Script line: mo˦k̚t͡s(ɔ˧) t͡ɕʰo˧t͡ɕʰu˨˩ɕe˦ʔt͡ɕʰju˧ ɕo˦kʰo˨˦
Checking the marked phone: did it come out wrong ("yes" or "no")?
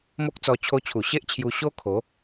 no